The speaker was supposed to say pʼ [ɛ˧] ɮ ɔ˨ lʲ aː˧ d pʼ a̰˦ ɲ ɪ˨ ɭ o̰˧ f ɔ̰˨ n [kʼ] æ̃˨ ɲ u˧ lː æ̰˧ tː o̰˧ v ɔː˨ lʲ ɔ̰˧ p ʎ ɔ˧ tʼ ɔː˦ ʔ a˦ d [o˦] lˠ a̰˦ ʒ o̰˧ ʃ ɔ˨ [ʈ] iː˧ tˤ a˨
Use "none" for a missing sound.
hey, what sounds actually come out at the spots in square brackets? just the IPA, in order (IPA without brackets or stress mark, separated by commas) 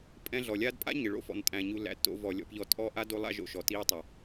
ɛ̃˧, tʼ, o˦, t